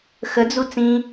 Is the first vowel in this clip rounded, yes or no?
no